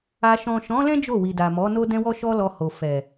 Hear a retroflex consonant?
no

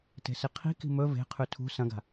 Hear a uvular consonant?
yes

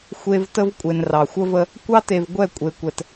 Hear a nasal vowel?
no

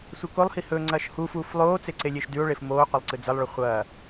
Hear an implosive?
no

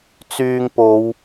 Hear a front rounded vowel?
yes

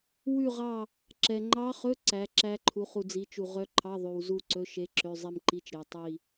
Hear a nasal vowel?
no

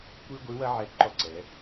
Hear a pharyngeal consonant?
yes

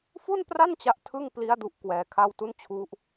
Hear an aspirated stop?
yes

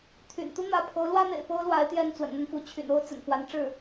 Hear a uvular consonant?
no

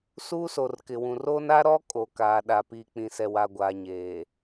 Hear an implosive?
yes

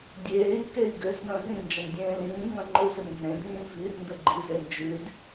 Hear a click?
yes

